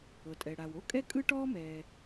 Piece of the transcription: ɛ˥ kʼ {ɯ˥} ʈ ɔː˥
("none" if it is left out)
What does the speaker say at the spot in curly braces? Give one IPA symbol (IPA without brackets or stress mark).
ɯ˥